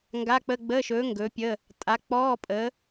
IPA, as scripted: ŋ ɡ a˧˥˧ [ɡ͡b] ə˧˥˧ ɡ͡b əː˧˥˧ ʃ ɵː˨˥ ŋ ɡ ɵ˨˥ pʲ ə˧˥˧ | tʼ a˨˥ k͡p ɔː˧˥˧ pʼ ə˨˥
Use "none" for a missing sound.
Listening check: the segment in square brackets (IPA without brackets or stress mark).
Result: k͡p